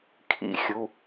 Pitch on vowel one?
high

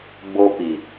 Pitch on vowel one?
high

